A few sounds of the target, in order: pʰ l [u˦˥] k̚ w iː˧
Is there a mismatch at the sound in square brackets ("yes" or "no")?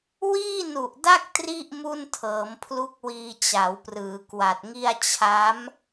no